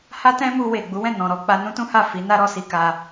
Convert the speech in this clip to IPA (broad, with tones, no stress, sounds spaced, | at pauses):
h a˦ t ɛ̃˦ m u˧ w e˨ ɡ͡b u˨˦ w ɛ̃˦˨ n ɔ̃˨ ɾ ɔ˧ k͡p a˧ n ũ˦ t ũ˦ h a˦˨ f i˨˦ n a˦ ɾ ɔ˧ s i˧ k a˧